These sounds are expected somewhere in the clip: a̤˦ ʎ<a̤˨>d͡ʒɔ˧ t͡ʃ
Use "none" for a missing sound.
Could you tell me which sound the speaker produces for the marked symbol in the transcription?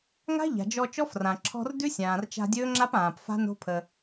a̤˨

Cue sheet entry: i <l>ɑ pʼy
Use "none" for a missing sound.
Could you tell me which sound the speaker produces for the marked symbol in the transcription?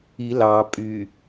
l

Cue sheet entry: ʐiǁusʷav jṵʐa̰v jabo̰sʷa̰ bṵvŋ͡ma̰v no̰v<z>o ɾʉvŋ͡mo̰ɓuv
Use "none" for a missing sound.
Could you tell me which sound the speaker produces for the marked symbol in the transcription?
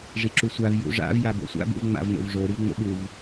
ʐ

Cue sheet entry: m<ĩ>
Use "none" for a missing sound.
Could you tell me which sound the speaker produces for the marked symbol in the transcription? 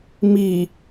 i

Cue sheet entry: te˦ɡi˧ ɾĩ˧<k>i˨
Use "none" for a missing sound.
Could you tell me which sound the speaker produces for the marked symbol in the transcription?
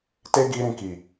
k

